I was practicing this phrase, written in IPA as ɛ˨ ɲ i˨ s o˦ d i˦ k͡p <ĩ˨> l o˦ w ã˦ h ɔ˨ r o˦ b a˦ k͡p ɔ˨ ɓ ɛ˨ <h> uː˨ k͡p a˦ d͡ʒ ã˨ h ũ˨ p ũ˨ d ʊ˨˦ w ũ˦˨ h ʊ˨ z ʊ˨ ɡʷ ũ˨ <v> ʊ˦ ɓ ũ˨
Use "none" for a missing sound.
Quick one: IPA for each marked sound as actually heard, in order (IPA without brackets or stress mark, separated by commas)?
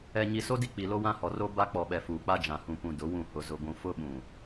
i˨, f, f